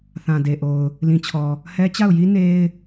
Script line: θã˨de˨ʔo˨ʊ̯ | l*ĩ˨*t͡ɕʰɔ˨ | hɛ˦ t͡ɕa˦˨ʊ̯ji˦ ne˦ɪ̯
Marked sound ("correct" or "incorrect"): correct